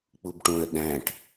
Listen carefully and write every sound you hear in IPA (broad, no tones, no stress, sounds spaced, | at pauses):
k͡p u b ʈ ũ ə̯ ɗ æ̃ ʈ